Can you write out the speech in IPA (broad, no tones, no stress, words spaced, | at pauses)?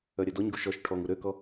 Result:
œɾʲœdɔɲɡu ʃɔʃ ʈʰɔŋu ɾøkɔ